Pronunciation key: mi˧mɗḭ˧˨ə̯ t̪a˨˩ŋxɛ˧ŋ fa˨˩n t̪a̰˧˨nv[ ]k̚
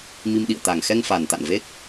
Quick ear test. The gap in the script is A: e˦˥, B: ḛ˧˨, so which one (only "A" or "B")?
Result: A